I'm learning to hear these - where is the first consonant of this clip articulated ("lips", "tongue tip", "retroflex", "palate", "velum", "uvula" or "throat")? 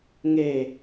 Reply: velum